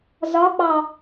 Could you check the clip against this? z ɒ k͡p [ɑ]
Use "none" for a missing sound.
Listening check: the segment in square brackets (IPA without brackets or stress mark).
ɑ